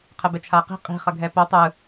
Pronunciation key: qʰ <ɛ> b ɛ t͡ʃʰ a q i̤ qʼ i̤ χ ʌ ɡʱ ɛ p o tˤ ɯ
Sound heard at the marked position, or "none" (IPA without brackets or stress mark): ɛ